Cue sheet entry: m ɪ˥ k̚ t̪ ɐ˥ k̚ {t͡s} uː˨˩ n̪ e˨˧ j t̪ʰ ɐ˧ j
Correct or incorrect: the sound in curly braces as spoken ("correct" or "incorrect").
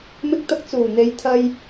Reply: correct